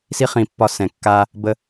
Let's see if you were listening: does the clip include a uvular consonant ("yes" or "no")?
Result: yes